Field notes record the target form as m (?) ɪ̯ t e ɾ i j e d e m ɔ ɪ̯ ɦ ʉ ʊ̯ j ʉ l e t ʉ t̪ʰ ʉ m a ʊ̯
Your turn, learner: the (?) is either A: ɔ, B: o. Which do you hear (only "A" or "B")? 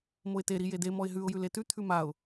B